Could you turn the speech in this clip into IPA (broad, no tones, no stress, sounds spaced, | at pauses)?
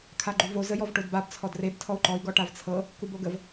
kʰ a ɡ͡ǃ u v o z ə j ɔ v ʈ o d b a b t͡sʰ ɔ d r e b tʰ ɔ u̯ ǃ ɔ i̯ ɡ ɔ ʈ a v t͡sʰ ɤ | k u b o ɡ ə v